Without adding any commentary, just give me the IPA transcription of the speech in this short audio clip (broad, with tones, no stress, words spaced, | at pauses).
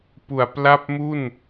pu˨˩a̯pla˥˩p̚mu˥˩n